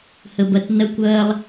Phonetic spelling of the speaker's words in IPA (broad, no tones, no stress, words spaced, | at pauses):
həbɐtnɐkʷɐːlˠ